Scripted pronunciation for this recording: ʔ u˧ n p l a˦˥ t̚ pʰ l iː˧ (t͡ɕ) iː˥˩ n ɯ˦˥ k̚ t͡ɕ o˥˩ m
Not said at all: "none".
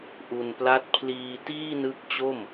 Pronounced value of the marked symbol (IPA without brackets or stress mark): t